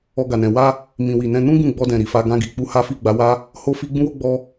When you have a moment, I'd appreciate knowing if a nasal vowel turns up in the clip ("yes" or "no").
yes